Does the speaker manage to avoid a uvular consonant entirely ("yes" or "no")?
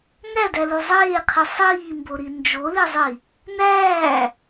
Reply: no